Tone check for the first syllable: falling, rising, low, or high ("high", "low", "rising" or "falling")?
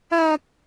high